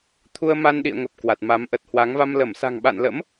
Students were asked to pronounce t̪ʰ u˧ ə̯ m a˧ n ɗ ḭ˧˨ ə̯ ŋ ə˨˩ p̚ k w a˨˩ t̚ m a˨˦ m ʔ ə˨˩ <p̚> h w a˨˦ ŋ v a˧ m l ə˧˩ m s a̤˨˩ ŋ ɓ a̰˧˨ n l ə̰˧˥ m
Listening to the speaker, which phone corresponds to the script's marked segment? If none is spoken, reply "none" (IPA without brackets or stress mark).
t̚